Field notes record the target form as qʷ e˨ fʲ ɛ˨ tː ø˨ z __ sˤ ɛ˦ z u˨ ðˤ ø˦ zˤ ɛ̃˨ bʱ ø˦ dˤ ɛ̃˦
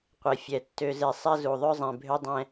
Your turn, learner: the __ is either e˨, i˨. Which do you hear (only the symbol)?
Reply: e˨